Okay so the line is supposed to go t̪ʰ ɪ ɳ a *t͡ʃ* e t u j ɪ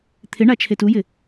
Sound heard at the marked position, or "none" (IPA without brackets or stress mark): t͡ʃʰ